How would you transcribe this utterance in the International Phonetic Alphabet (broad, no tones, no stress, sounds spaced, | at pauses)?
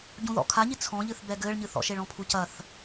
ɟ ũ ð ɔ̰ kʰ a ɲ i t͡sʰ ɔ̃ ʎ ɨ θ b ɛ ɡ ɘː ɭ ɲ ɨ θ ɔ̰ ʃ e ɭ ɔ̃ pʰ u c ɐ θ